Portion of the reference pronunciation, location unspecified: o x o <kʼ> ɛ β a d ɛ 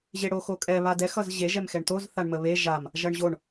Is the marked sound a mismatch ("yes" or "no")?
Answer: no